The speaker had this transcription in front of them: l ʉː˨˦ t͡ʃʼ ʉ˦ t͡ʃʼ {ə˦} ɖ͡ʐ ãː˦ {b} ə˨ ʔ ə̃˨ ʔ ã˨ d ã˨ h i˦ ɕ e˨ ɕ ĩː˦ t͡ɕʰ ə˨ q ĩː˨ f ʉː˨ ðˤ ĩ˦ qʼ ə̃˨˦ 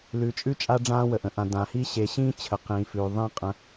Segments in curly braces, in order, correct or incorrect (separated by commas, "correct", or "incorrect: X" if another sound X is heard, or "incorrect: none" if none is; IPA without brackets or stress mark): incorrect: a˦, incorrect: w